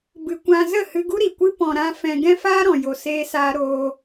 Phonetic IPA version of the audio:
b ɨ˧ kʷ ã˧ z ə˦˨ h ɨ˧ ɡ u˦ ɾ i˨ kʷ ɨ˦ p ɔ̃˧ ɾ ã˦ f ɛ̃˧ ɡ ɛ̃˦ f aː˦ ɾ ɔ̃˨ j o˧ s eː˦ s aː˦ ɾ oː˧

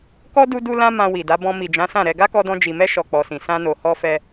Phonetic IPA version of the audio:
k ɔ˦ d u˧ d u˧ l ã˦ m ã˧ w i˨ d a˨˦ b ɔ̃˧ m i˨ d͡ʒ ã˨˦ s ã˦˨ ɾ ɛ˧ ɡ a˦ k ɔ˧ d ɔ̃˧ d͡ʒ i˨ m ɛ˧ ʃ ɔ˨ k͡p ɔ˨ s ĩ˨ s ã˧ n o˨ h ɔ˧ f ɛ˧

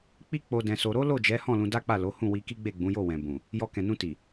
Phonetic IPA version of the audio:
k͡p i˦ k͡p o˧ d ɛ̃˧ s o˧ ɾ o˦ l o˦˨ d͡ʒ ɛ˨˦ h ɔ̃˦˨ l ũ˧ d a˦ k͡p a˦˨ l o˨˦ h ũ˦˨ w i˧ k i˦ ɡ͡b e˦˨ ɡ͡b ũ˨˦ j o˦˨ w ɛ̃˨ b ũ˨ | j ɔ˧ k ɛ̃˨ n ũ˧ t i˨

